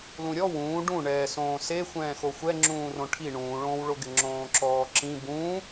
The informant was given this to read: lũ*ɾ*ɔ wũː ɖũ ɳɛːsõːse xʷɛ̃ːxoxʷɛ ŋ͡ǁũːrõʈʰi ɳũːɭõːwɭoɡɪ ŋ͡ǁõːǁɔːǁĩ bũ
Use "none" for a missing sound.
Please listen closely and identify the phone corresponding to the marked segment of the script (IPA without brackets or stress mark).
ɾʲ